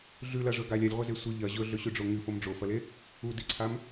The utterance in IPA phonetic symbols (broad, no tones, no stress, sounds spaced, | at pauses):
ɮ ʉ l ɐ ʐ ɵ ɡ a lʲ a lʲ ʁʷ ɐ z e sʷ ɨ ʎ ɐ ʑ ɵ ɮ ɵ ɕ ʉ ɖ͡ʐ o ŋ ɨ f o m ɖ͡ʐ o f ɐ l e | u d i ǀʰ a m